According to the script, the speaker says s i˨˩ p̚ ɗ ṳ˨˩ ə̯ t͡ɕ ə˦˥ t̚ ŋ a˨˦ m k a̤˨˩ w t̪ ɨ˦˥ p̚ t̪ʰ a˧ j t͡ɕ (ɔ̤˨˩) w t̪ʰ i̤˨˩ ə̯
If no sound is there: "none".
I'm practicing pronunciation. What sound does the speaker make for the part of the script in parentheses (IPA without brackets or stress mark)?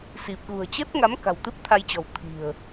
ɔ̤˨˩